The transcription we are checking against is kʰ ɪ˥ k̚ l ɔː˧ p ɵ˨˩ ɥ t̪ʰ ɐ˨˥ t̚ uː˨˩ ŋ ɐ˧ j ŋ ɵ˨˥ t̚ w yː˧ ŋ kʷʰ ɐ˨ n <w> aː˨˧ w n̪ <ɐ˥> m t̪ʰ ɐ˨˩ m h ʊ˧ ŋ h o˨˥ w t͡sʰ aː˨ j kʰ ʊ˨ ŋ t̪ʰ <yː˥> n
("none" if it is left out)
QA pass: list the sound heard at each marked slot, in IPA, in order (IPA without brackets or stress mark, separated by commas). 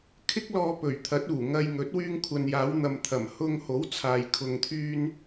j, ɐ˨, yː˧